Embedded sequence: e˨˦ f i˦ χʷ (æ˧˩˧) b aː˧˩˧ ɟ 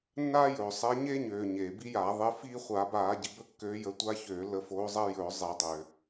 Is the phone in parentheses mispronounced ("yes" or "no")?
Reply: yes